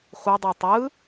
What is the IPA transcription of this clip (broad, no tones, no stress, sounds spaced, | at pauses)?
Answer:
χʷ ɯ dˤ o tˤ ɯ